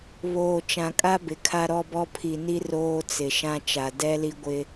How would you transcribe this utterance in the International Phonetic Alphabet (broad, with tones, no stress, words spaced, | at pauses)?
βoː˨t͡ʃã˨kʼa˦ bɪ˨kʰa˦ɾɔ˦bɔ˦ pʰi˨ni˦ roː˦t͡sɪ˨ʃã˦ t͡ʃa˨dɛ˦li˦ɡʷɪ˦